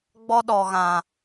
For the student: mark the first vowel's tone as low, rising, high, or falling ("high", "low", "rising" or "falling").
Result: high